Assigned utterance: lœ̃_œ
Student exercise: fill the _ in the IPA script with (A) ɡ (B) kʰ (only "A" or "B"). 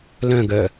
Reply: A